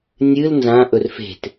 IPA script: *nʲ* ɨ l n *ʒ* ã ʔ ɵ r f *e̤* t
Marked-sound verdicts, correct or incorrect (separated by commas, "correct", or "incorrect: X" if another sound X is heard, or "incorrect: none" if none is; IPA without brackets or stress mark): correct, incorrect: z, correct